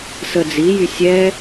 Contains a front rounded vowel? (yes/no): yes